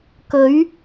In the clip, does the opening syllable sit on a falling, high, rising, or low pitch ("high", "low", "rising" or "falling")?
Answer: rising